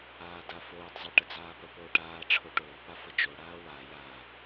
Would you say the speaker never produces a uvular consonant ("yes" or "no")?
yes